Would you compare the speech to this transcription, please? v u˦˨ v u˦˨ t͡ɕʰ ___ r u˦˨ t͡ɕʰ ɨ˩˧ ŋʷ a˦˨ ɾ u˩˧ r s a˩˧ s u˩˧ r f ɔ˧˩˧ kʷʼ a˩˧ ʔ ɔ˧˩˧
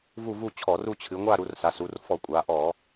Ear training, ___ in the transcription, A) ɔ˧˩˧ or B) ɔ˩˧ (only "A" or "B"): A